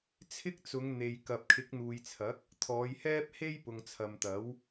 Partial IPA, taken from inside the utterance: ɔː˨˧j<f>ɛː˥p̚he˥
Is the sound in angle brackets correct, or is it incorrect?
incorrect